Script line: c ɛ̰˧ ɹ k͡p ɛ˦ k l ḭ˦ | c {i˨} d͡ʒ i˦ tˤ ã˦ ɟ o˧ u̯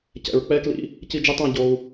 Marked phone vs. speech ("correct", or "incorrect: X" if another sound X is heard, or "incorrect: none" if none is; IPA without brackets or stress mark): incorrect: i˦